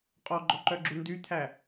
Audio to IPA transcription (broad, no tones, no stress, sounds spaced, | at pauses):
qʼ ɔ ɡ͡ǃ ɔ ǃ œ ɡ͡ǁ u n d y t̪ʰ æ